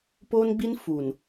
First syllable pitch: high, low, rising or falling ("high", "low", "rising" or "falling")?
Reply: high